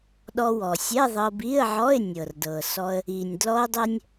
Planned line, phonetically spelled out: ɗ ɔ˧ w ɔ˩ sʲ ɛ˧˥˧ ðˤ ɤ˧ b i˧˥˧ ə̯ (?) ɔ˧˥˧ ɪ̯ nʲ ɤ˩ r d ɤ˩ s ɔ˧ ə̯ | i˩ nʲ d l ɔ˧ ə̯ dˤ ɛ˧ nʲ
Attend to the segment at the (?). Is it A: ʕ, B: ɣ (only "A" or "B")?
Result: A